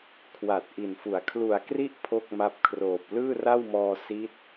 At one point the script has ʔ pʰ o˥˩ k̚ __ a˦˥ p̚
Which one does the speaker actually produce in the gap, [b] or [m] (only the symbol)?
m